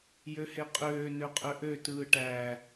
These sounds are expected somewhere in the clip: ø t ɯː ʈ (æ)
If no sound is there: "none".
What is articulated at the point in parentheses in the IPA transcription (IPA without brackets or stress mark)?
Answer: æ